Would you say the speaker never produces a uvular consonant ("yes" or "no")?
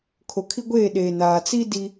yes